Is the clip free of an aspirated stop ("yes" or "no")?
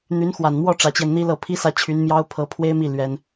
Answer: no